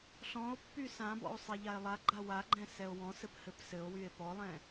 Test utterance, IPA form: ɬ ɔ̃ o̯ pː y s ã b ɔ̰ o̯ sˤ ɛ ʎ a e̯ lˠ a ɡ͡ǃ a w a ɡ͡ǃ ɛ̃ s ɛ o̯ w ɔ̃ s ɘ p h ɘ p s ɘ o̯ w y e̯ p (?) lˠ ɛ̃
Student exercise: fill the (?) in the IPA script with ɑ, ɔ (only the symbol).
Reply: ɔ